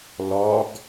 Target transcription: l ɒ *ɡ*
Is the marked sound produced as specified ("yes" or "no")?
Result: yes